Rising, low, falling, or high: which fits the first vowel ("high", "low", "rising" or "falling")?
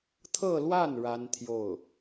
falling